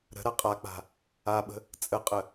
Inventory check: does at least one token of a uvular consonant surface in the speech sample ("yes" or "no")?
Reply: yes